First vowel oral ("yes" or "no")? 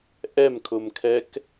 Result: yes